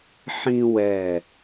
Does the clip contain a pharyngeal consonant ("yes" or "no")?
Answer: yes